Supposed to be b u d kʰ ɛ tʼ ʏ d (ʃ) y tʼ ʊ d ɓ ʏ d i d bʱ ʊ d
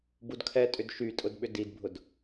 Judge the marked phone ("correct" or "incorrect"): correct